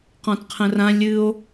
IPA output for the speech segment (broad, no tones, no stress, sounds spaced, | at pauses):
q ɔ̃ t qʰ ə̃ r ã lʲ ɨ o̯